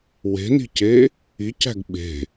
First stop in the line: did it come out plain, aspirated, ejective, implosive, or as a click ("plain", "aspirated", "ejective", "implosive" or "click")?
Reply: plain